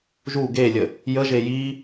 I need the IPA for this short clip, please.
ʒ u ɡ e lʲ ə | j ə ʒ e j i

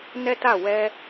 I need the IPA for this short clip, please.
n ɛ˦ t a˦˨ w ɛ˧

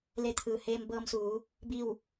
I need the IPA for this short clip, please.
l e˧ t̪ʰ ɯː˩ h eː˧ m b ɤː˧ m s uː˩˧ | b i˥˨ w

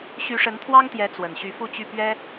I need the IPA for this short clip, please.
ɕ y˧˥ ʂ ə˧˥ n t̪ʰ w ɑ˥ ŋ t̪ j ɛ˧˥ t͡s w ə˨˩ n ɕ y˧˥ f u˥˧ t͡ɕ y˥˩ p ɥ ɛ˥

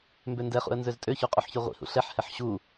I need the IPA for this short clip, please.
m b ø n d ɛ χ ṵ ə̯ n z ø z tʼ ø ç u qʼ u ħ ç y ʁʷ ḭ h ṵ ɬ ɛ ħ h ɛ ħ ɕ u

